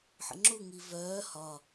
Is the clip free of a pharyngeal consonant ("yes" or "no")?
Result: no